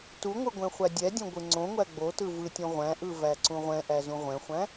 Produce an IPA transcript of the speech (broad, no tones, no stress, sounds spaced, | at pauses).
t u ŋʷ ɯ ɡʷ ɛ̃ χʷ æ dʲ ɛ dʲ õ ɡʷ ɯ ŋ͡ǀ õ ŋʷ æ ɡ͡b o t ɯ v ɯ tʲ õ ʁʷ æ̃ ʔ ɯ v æ ǀ ũ ʁʷ ɛ̃ ʔ æ z ũ ʁʷ ɛ̃ χʷ æ̃